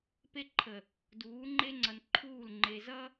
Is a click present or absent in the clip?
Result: present